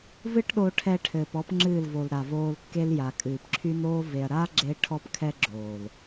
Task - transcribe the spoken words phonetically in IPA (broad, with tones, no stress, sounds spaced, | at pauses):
v ɨ˦ ʈ ɗ o˧ ʈʰ ɛ˧ ʈʰ ɘː˨ p ɔ˦ p ŋ͡ǁ ɨː˦˨ l v o˨ l ɾ a˨ v oː˧ l kː e˦ l j a˨ kʼ ɨː˨ p ǁʰ y˦ n oː˦ v e˧ ɐ̯ ɾ aː˦ ɡ͡ǁ e˧ ʈʰ ɔ˦ p kʰ ɛ˦ ɡ͡ǁ oː˨ l